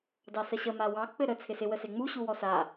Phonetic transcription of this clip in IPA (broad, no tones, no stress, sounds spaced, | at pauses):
d ɑ s ə ɕ ə m a w ɑ k͡p ɘ ɾ ə t͡sʰ ɪ s ɪ w ə s e ŋ͡m u ɕ u w ɔ s a